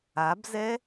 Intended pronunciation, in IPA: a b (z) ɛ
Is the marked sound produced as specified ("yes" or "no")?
yes